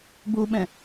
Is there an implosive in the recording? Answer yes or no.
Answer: yes